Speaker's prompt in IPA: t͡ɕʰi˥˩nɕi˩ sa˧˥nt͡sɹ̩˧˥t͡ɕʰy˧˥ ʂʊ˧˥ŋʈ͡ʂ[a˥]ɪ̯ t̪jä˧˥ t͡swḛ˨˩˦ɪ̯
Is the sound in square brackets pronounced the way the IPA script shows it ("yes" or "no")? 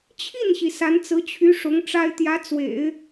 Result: yes